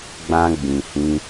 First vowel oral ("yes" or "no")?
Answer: no